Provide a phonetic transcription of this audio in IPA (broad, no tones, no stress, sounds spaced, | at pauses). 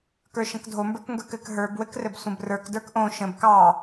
k ə˞ ʃ ə̃ k dʱ o m b ə˞ k ŋ ɡ ə˞ k ɘ k ɦ ə˞ b w ɘ k r ɘ b sʷ ə̃ b r ə˞ k d ə˞ k ʔ õ ʃ ə̃ b k ɑ